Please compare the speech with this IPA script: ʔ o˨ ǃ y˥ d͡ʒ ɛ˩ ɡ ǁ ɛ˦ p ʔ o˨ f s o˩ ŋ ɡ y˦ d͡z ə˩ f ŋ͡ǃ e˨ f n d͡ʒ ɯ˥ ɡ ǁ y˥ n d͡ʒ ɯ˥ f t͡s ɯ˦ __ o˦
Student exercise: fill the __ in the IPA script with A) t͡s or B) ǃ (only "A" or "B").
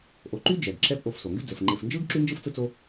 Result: A